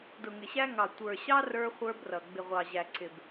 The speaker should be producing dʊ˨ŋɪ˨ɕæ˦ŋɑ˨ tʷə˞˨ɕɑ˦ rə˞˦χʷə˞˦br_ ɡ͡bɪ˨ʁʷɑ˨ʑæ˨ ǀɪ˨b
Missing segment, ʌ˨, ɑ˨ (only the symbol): ʌ˨